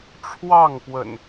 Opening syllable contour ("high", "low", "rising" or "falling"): falling